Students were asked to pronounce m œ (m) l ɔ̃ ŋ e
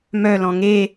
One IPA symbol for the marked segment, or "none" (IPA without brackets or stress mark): none